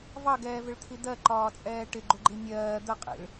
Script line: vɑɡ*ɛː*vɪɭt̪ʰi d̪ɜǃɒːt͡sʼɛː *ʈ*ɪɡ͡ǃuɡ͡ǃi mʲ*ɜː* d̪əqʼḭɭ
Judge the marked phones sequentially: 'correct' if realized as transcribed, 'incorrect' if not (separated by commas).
correct, correct, correct